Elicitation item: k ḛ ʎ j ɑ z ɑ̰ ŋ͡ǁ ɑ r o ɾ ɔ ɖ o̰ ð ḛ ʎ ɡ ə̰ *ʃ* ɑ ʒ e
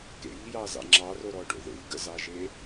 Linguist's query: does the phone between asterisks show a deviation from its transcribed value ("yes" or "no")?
yes